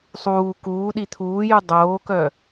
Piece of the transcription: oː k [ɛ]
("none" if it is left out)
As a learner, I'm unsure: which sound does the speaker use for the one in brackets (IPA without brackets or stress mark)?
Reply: œ